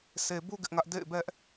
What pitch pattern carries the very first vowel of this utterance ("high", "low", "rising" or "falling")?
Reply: low